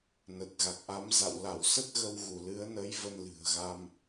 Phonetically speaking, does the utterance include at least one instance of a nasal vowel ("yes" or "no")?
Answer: no